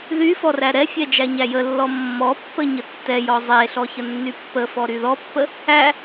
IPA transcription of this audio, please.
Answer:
ð y f ɔ r æ ɾ ɛ fʲ ɛ d͡ʒ æ ɲ æ j ə lː ɔ mː ɔ pː ə ɲ ə tː ɛ j ɔ zˤ e ɬ ɔ ç ə nː y pː ə f ɔ ɾ y ð ɔ pː ə | æ

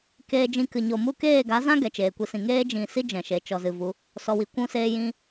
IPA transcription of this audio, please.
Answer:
k eː˧ d͡ʒ ĩ˧ k ɨ˨ ɲ o˨ m u˧ k eː˦˨ ɡ a˨˦ z ã˦ ɡ ɛ˨ t͡ʃ eː˨ kʷ i˧ s ĩ˨ ŋ eː˦ d͡ʒ ĩ˨ s i˦ d͡ʒ ɛ̃˨ ʃ e˨ t͡ʃ ɔ˨ z ɨ˨ v u˨˦ | s ɔ˨ w i˨ kʷ ũ˧ s eː˧ j ĩ˧

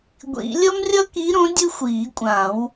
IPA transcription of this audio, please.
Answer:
ɡʷ ḭ˨˩˦ lʲ ʌ˥ m rʲ ʌ˥ k i˨˥ ɾ õ˨˥ dʲ ɯ˥ xʷ iː˨˩˦ kʷʼ ã˨˩˦ w

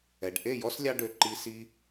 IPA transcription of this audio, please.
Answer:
ɛ˨ ɖ ʔ e˦˨ j ɔ˦ s lʲ ɑ˧ ɖ ø˨ ǃ i˧ s i˧

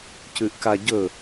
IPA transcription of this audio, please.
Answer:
c ʉ ʔ k a ɟ ɵ

